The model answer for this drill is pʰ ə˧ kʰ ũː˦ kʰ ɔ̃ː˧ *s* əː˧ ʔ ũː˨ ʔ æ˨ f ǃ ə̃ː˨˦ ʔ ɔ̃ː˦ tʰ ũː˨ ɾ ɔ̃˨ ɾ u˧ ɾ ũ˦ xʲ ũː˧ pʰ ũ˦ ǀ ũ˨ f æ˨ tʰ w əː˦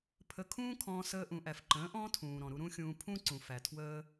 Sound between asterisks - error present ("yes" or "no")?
no